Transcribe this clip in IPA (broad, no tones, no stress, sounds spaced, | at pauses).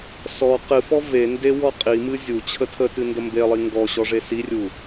s ɔ q ɨ f ɔ v e n d e w ɔ qʼ i m ɨ zʲ u t͡ɕʰ ə tʰ ə t ɨ n d ə m b e lˠ i ŋ ɡ ɔ ɕ ɔ ʐ e s i rʲ u